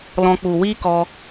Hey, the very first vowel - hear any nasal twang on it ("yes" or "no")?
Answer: yes